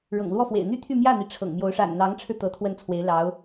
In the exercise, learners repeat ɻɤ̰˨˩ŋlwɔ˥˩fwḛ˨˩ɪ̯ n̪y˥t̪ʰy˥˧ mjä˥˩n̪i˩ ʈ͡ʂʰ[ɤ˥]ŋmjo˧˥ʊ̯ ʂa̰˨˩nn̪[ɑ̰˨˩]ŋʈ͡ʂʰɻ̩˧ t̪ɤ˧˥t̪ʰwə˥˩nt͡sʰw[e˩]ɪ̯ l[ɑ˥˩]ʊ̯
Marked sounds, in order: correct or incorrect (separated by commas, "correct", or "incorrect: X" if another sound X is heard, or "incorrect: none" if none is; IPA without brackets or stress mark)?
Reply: incorrect: ɤ̰˨˩, incorrect: ɑ˧˥, incorrect: e˧˥, incorrect: ɑ˧˥